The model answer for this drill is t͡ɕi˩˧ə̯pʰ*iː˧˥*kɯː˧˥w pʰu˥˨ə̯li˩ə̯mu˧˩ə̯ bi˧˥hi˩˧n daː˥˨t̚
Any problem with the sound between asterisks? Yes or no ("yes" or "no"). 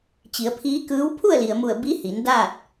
no